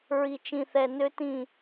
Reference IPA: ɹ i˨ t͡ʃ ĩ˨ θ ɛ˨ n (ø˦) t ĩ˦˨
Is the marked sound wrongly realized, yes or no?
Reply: no